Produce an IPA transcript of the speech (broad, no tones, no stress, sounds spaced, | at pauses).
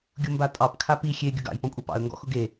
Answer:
ɡʲ ʊ m b a tʼ ɑ p kʰ a p i xʲ e ɡʲ ʊ ɡ ɑ̰ j p ɔ̃ kʷʼ ɑ p ɑ̰ ə̯ ŋ ɡ ɔ̰ x ʊ ɡ e